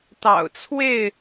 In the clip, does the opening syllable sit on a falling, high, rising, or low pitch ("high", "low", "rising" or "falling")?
low